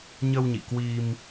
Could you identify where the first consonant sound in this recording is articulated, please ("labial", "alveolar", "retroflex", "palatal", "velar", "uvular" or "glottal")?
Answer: palatal